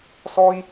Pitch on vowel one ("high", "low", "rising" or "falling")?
high